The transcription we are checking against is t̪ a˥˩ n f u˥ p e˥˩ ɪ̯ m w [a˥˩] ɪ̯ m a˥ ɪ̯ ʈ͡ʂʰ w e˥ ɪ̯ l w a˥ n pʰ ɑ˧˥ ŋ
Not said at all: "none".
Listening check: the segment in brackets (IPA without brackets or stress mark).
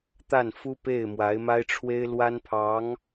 a˧˥